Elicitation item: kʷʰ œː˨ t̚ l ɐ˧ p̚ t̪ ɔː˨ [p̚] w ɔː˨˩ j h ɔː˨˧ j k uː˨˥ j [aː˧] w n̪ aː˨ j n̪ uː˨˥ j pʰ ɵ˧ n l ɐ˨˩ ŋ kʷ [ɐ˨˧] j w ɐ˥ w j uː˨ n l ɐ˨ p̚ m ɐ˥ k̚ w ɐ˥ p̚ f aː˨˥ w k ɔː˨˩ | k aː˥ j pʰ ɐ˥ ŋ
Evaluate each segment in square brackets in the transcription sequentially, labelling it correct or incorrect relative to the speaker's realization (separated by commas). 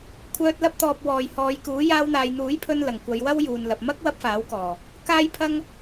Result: correct, correct, correct